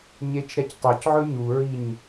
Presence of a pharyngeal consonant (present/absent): present